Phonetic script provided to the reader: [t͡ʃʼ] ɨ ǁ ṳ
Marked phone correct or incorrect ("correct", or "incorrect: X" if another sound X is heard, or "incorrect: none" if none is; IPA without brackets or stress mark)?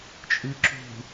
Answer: correct